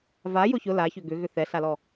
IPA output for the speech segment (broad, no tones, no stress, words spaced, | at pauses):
vajʊ çʊ laçʏ ɡʏɣʏ θɛɬalɔ